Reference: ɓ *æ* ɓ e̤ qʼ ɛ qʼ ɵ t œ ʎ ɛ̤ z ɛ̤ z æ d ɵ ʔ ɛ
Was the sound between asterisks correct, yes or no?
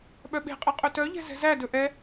no